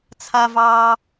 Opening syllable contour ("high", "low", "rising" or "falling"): high